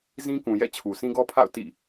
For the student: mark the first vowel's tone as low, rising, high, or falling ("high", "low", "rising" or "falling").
high